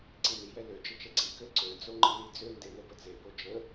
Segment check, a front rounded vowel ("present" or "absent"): present